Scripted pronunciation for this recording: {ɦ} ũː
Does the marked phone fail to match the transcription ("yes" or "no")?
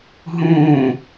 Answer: no